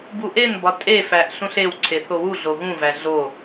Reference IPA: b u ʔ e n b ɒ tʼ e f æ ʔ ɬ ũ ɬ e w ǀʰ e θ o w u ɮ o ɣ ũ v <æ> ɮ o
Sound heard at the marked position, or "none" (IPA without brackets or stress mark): æ